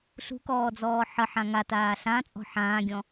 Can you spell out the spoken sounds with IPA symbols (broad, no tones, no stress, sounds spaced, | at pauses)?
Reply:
ɬ ṳ k ɔː d͡z ɔː ħ ə ħ ã ŋ a t aː ɬ ã t͡sʼ ɔ̤ ħ ãː ɡʲ ɔ̃